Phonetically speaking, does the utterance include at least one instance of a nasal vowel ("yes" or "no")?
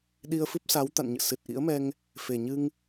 no